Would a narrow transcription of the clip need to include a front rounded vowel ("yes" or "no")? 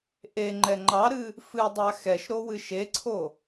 no